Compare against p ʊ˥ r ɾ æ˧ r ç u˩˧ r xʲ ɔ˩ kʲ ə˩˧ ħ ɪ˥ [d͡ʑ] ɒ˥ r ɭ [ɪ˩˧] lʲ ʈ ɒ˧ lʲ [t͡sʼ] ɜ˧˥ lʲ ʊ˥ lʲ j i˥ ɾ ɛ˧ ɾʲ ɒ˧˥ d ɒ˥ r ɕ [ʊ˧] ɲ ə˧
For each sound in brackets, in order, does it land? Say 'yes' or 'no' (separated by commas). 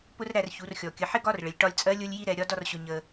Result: no, no, yes, yes